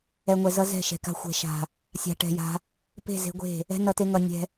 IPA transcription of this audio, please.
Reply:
ɛ˨ ŋʷ ɛ˨ z ʌ˧ z ɛ̤˦˨ ʃ ɛ̤˨ k a̤˧ xʷ ɛ̤˨ ʃ a̤˨ | sʲ a̤˨ ʈ ɛ̤˨ j a̤˧ | p e̤˦˨ z e̤˧ ɡʷ e̤˦˨ | ɛ̤˦ n ʌ˧ t e˧ ŋ ʌ˨ nʲ ɛ̤˧

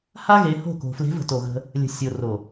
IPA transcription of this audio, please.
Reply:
h a˦ ɣ e˨˦ h o̤˦˨ k o̤˨ f l e̤˨˦ v ə̤˨ t o˨ ɣ ə̤˦ | lʲ ə̤˨ sʲ o˨ r o˨

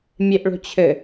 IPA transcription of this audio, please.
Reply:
mʲ e ʔ ɭ o̤ t͡ɕʰ ɘ

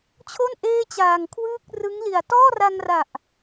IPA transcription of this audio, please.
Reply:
t͡ɕʰ o˥˩ n ʔ eː˥˩ t͡ɕ aː˨˩ ŋ kʰ w ɯː˥˩ k̚ r ɯ˦˥ ŋ l i˨˩ a̯ t ɔː˥˩ r a˧ ŋ r a˨˩ ʔ

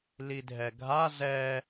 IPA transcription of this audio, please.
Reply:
l i dʱ ɛ ɡʱ a z ɛ

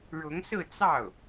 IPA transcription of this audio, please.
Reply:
ɻ ʊ˧˥ ŋ s ɹ̩˥˧ t͡s ɑ˥˩ ʊ̯

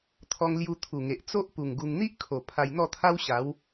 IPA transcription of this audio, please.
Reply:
t̪ʰ ɔ˧ ŋ l j u˧ t̪ʰ u˨˩ ŋ e˨ ʔ t͡s o˦ ʔ p u˨˩ ŋ ɡ u˧ ŋ n̪ i˦ ʔ kʰ o˨˩ pʰ a˧ j n̪ ɔ˥˧ t̪ʰ a˦ w ɕ a˨˦ w

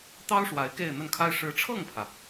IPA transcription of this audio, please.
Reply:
t̪ ɑ˥ ʊ̯ ʂ w a˧˥ ɪ̯ k e˥˧ ɪ̯ n̪ ə˥˩ n kʰ a˥ ɪ̯ ʂ ɻ̩˧˥ ʈ͡ʂʰ ɤ˥˩ ŋ pʰ ä˩

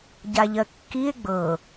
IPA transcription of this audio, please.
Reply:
ɟ a ʎ ɜ kː i e̯ ɡ͡b ɤ

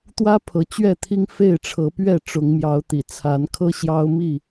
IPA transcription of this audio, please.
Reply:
t̪ w ä˦ pʰ ɤ˨˦ t͡ɕ ɥ ɛ˥˨ t̪ʰ i˦ ŋ f e˥˨ ɪ̯ ʈ͡ʂʰ ɤ˨˦ p ɥ ɛ˥˨ ʈ͡ʂ ʊ˨˦ ŋ m j ɑ˨˦ ʊ̯ t̪ ḭ˨˩ t͡sʰ a˨˦ n kʰ ɤ˦ ɕ j ɑ˦ ʊ̯ m i˥˨

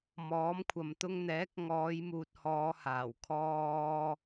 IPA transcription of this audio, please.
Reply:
m ɔː˨˥ m kʷʰ ɐ˨ m t̪ ʊ˥ ŋ n̪ ɛː˨˥ k̚ ŋ ɔː˨˧ j m uː˨ t̚ h ɔː˨˧ h aː˨˩ w kʰ ɔː˥

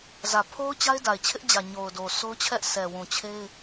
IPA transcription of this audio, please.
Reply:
z ä˨ pʰ o˦ ʊ̯ t͡ɕ a˦ ɪ̯ d a˨ ɪ̯ t͡ɕʰ ɪ˦ ʔ d͡ʑ ä˨ ɲ o˨ ʊ̯ d o˨ sʰ o˦ ʊ̯ t͡ɕʰ ɛ˦ ʔ s ɛ˨ w ũ˨ t͡ɕʰ e˦ ɪ̯

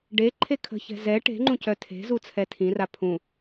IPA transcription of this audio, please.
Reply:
ɖ e ǃʰ e kʰ ə̤ ç ɛ̤ z ɛ ʈ e̤ ŋ͡ǃ ũ c œ tʰ e̤ z u t͡sʰ ɛ tʰ ĩ r a pʰ ũ

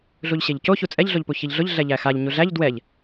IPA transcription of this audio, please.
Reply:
ɮ u ʎ ɕ e ʎ c o ç u t͡sʼ ɛ ʎ ɮ o ʎ p u ç i ʎ ɮ ʊ ʎ ɮ ɛ ʎ æ x a ʎ ɲ u ɮ æ ʎ d w ɛ ʎ

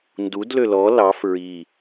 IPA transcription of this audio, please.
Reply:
n d u d l ø l ɔ l ɑ f ɹ i

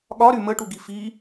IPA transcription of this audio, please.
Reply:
ɠ ɒ ɾ y m ə ʈ u ɡ i f i

